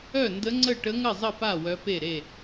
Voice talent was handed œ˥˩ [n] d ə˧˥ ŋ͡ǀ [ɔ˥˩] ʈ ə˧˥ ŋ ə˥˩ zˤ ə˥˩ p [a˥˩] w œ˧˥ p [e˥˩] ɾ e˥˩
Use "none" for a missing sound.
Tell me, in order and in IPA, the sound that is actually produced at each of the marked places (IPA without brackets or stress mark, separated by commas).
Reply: n, ə˥˩, a˥˩, e˥˩